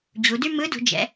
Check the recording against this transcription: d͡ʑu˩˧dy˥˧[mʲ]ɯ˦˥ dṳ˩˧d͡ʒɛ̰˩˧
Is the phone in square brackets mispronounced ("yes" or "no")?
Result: yes